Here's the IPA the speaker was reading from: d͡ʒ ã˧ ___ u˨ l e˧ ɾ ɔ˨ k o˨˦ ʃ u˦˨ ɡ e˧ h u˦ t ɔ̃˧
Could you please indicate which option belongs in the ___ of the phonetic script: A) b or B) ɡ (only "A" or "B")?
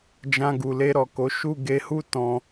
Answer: B